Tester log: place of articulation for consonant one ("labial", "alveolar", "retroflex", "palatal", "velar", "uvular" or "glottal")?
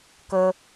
velar